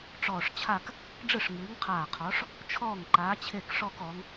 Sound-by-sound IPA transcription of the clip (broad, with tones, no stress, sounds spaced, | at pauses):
ʈ͡ʂ ɔː˧˩ ʂ t͡ɕʰ a˥˧ k | ɖ͡ʐ ɯ˥˩ ʂ ŋ ɨː˨˥ ŋ qʰ aː˧˩ qʰ ɔ˨˥ ʂ | t͡ʃʰ ɔː˥˩ ŋ ǃ aː˨˥ t͡ɕʰ e˥˩ k ʂ ɔ˥˧ k ɔ˨˥ ŋ